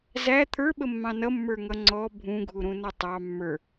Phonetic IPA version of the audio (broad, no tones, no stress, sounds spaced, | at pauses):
z æ t̪ʰ ə˞ ɓ ə mː ɑ̃ n ʌ mː ə˞ ŋ ʌ ŋ͡ǀ ɔ bʱ ũ ɡʱ u ɾ ũ n ʌ tˤ ɑ mː ə˞